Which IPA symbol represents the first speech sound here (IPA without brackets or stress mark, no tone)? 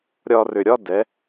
ɾʲ